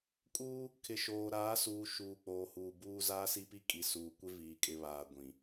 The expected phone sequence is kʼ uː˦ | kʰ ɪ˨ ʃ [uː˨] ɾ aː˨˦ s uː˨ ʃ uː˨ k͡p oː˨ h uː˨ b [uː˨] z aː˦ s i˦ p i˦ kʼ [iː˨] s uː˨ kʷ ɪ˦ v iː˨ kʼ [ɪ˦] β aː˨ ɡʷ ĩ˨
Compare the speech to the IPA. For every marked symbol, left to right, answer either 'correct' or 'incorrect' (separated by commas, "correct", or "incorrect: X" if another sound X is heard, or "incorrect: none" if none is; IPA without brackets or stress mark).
incorrect: oː˨, incorrect: uː˦, incorrect: i˨, incorrect: ɪ˨